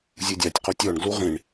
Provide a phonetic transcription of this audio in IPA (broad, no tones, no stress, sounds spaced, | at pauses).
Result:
zʲ u dʲ a tʲ q o tʲ ɔ ɳ ɡ l u ʁ ĩ ɳ